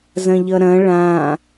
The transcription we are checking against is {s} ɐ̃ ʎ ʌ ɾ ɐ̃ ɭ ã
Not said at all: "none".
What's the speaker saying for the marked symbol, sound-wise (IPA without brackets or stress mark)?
z